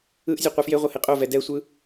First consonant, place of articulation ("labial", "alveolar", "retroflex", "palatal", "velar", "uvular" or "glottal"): glottal